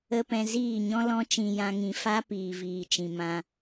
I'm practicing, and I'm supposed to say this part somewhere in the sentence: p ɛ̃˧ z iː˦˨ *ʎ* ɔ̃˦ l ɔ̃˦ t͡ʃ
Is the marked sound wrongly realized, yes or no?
yes